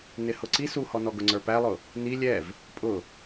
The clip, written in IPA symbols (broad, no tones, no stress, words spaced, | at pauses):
nɪhʊǀi suhɔnɔ ɡʊŋ͡ǀə˞pælˠʊ | ni lʲɛv | pʼʊ